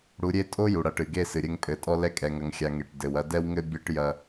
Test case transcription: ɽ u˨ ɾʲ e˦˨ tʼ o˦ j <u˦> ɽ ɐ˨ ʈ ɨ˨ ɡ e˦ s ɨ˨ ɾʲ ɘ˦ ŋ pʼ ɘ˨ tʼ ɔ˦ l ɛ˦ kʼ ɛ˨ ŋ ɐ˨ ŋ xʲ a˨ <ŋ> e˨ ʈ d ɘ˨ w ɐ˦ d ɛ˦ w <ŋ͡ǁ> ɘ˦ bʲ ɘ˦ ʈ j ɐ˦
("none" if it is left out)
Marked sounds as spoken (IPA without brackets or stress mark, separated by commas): u˨, ŋ, ŋ